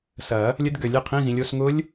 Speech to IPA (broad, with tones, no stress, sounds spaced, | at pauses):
s ɐ˨˩˦ | lʲ ə˦˥ d ɡ ø˨˩˦ lʲ ø˨˦ qʰ ĩ˧˥˧ z ĩ˨˦ lʲ o˨˦ s ŋ ʊ˦˥ lʲ